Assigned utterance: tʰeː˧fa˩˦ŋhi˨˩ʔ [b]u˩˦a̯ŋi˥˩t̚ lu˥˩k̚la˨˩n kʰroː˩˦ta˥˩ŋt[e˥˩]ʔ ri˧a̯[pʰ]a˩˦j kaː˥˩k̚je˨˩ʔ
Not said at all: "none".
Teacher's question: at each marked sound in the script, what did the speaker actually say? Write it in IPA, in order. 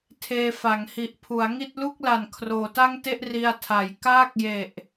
pʰ, e˥˩, tʰ

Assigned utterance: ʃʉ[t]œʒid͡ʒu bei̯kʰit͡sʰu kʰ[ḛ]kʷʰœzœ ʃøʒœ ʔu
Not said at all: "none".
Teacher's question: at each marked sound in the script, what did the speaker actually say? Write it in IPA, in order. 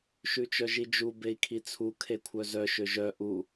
t͡ʃ, e

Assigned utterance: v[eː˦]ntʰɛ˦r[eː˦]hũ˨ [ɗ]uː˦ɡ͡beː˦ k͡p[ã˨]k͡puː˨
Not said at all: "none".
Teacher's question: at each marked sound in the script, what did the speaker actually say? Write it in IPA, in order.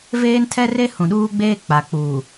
eː˦, e˦, ɗ, a˨

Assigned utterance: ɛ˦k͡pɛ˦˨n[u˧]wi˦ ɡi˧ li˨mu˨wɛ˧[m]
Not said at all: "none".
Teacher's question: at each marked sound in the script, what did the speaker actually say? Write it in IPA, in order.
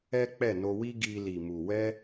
o˧, none

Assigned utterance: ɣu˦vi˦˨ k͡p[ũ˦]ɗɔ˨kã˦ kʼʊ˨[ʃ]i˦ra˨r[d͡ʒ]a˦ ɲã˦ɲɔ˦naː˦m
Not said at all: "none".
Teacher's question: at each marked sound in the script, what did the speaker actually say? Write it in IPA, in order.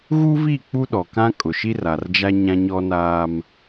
u˦, ʃ, d͡ʒ

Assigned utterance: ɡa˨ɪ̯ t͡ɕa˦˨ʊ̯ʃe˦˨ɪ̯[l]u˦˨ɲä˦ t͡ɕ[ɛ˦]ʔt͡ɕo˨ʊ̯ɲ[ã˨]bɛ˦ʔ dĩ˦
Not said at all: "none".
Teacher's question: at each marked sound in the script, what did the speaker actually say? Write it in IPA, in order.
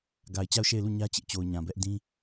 l, ɪ˦, ã˨

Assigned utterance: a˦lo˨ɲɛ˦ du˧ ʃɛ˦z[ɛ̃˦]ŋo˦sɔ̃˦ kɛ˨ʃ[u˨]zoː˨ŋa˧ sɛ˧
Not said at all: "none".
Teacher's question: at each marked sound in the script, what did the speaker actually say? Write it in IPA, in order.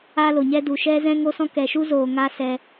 ɛ̃˦, u˦

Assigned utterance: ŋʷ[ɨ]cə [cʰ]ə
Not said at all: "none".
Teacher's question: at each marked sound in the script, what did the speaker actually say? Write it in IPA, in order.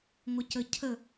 ə, cʰ

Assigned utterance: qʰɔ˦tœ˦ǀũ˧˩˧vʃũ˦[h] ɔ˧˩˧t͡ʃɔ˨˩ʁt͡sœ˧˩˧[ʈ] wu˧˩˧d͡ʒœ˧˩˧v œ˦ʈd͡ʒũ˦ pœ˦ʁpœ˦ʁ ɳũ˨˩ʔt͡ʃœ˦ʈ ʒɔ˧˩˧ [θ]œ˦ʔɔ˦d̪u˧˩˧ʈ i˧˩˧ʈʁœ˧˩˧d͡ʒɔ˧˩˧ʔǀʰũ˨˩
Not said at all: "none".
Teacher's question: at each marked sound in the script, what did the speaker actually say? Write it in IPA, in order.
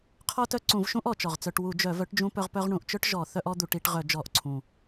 ʔ, ʈ, θ

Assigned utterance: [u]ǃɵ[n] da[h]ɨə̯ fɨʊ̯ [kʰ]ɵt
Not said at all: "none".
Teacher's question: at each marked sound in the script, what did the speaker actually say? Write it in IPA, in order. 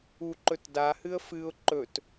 u, t, h, ǃ

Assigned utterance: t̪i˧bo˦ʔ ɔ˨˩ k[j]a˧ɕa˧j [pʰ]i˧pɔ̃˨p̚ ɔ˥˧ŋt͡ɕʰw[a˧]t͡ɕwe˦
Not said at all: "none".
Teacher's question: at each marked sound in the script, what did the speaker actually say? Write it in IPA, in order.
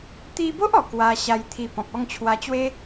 w, t̪ʰ, a˧

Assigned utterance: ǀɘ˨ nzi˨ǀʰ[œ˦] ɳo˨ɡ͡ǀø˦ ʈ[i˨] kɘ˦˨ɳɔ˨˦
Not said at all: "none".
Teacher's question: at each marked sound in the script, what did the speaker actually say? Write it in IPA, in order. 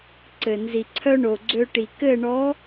œ˦, i˨

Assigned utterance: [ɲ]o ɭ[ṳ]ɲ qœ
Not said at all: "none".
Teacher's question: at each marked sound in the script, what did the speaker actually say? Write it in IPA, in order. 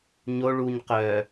ɲ, u

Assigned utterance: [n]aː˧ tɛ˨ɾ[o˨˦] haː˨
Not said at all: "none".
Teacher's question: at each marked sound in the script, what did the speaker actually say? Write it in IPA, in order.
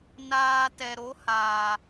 n, o˨˦

